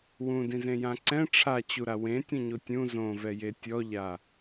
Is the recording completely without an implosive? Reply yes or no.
yes